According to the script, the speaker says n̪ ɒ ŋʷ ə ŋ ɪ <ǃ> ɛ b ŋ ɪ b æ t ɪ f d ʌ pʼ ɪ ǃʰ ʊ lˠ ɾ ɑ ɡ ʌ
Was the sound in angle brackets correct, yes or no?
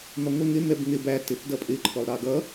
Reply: no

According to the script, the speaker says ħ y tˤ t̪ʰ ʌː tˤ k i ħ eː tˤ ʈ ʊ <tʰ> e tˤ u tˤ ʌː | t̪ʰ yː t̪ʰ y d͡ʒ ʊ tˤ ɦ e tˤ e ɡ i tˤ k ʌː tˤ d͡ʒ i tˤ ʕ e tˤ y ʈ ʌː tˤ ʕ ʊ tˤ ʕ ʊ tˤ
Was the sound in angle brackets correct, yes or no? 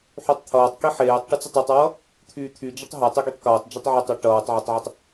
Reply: no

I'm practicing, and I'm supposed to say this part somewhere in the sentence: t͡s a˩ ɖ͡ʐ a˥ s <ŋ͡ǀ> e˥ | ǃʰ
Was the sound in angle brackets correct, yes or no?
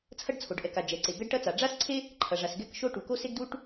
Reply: no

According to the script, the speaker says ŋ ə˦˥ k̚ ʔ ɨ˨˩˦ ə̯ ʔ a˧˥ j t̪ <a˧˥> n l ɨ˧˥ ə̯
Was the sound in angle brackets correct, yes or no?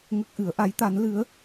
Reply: yes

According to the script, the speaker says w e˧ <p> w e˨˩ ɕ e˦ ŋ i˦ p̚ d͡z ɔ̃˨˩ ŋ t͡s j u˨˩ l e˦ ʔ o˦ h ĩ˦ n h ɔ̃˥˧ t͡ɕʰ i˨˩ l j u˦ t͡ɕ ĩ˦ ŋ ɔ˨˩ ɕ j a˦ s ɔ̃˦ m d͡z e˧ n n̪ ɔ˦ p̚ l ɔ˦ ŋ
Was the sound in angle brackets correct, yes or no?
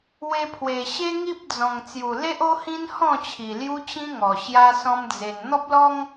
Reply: no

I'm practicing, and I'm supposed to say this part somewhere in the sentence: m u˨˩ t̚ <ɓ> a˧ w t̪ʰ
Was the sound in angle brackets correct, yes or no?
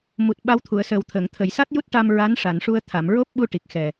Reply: yes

